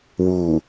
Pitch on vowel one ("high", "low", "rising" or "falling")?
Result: low